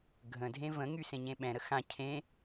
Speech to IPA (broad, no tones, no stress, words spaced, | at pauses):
ɡʱə̃dʱẽ və̃ŋy sẽɲẽɓɛ̃ɾə xã cʰẽ